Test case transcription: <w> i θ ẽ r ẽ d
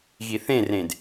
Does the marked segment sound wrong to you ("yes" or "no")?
yes